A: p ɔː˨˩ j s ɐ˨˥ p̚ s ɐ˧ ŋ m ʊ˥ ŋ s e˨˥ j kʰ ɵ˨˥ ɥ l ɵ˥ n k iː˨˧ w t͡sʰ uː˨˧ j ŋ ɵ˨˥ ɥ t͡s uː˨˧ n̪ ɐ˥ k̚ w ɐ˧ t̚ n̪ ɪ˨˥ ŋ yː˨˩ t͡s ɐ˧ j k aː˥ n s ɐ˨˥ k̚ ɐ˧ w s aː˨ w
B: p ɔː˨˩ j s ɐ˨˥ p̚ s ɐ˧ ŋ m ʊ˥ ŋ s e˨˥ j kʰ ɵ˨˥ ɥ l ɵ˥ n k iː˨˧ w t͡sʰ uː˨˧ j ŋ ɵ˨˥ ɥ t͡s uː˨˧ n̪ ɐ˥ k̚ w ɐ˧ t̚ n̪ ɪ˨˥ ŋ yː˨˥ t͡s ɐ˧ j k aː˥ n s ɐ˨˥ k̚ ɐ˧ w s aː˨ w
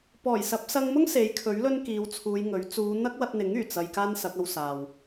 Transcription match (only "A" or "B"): A